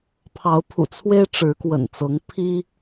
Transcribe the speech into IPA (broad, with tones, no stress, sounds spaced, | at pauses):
pʰ ɑ˨˦ ʊ̯ pʰ ṵ˨˩ t͡sʰ w e˦ ɪ̯ ʈ͡ʂ ɻ̩˨˦ k w ə̰˨˩ n t͡s ɤ˨˦ ŋ pʰ i˦